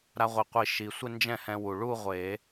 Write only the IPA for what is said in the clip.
ɾa˧ʁʷi˨˩qʷi˨˩˦ ʃi˨˩sʷɪ˥˧ nd͡ʒɛ̃˥˩hɛ̃˧wu˨˩ ɭu˥˧ ʁʷe˨˩˦

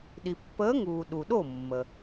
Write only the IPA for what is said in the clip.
ɗi˩pːəː˨˥ŋuː˩ ɗu˩ɗo˥˩ mːə˩

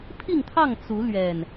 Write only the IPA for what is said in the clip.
pʰi˥˨ŋt̪ʰɑ˥˨ŋ t͡su˨˦lɥɛ˨˩n

